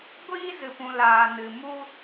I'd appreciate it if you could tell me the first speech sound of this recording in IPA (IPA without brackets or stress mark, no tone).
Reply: ɡʷ